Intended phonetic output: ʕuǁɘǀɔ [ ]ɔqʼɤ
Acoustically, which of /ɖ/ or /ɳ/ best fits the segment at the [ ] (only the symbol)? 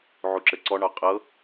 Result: ɳ